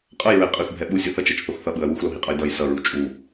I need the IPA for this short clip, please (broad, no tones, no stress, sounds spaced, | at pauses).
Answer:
qʼ ʌ j ɹ ɛ qʼ ɯ x bʱ ɛ ɓ u sʲ ɯ θ ʌ t͡ʃ ɛ t͡ʃ θ o x θ ʌ ɓ ɯ ɐ̯ w u x l o ɦ i qʼ ʌ j d ʌ j s ʌ ɹ u t͡ʃʼ u